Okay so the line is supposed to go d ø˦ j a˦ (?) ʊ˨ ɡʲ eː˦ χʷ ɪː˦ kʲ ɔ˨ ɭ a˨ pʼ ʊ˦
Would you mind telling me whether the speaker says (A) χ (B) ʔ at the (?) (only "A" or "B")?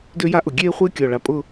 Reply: B